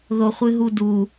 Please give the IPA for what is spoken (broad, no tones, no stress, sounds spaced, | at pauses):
ð o χʷ ɨ ɦ u d u